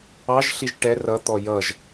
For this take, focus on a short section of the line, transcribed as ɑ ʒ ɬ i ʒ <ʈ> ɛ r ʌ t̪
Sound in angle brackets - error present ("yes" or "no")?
no